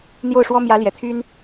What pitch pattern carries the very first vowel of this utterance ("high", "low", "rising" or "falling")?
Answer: falling